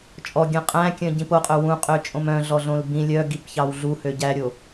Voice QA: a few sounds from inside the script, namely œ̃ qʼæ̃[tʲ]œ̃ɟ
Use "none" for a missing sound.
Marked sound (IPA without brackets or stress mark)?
kʲ